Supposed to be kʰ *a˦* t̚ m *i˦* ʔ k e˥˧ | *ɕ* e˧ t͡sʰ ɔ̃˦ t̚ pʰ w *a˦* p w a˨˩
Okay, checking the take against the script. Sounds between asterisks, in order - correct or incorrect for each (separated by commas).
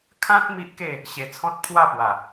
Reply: incorrect, correct, correct, incorrect